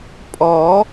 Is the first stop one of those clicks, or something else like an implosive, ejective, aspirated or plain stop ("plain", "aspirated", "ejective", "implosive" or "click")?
ejective